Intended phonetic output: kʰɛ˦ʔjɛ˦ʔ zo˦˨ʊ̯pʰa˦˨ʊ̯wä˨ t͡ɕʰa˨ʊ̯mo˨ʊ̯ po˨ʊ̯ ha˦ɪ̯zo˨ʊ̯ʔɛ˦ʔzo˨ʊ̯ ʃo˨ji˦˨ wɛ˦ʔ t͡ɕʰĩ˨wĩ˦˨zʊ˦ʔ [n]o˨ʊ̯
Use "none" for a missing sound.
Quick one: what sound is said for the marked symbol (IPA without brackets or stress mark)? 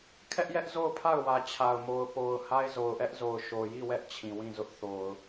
θ